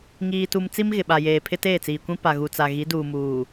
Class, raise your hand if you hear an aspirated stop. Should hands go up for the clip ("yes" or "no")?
yes